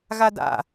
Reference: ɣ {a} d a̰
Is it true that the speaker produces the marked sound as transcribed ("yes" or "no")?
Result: yes